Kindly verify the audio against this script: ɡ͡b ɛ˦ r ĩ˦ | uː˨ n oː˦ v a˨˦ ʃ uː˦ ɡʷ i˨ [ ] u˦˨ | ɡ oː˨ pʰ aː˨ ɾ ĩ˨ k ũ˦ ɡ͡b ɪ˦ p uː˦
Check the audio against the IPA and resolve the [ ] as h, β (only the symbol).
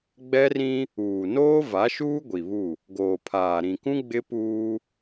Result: β